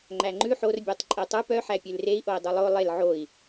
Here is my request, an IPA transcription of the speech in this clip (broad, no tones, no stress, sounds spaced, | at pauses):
ŋ͡ǃ æ ŋ͡ǃ ʉ ħ o r bʲ æ tˤ ǃʼ e tˤ u p œ ħ æ pʲ ʉ l r e i̯ ʔ o i̯ dˤ ʉ lˠ o lˠ e l ʕ o i̯